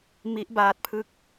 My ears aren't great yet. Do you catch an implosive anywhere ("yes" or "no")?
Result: no